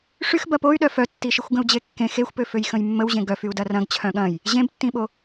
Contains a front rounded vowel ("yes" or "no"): yes